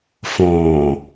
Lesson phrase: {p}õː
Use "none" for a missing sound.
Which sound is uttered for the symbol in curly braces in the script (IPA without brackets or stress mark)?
f